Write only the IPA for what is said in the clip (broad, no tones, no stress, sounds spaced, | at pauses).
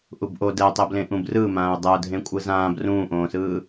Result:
ʔ u b ʔ o d ɛ tˤ e b l ẽ ʔ ũ b r ɯ m ãː ʊ̯ dˤ ɛ ʊ̯ dʱ ẽ kʷʼ ɯ z ãː b r ũː ʔ õː s ɯː